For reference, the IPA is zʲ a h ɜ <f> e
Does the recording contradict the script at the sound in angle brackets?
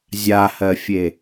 yes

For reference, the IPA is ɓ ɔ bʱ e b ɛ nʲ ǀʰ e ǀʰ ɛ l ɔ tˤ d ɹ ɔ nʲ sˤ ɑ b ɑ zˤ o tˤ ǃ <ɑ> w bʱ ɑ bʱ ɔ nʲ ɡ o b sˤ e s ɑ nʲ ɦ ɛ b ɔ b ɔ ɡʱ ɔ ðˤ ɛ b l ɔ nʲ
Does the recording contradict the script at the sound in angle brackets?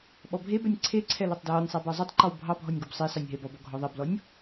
yes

